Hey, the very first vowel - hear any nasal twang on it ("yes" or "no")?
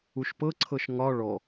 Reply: no